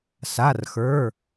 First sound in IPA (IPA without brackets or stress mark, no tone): s